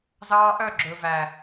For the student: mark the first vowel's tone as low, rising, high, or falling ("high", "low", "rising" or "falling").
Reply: high